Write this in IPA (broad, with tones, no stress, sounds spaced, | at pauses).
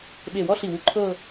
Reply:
ɓ e˧˩ w ɔ˥ ɬ i˧˩ w u˧ ǃʰ ɤ˥˧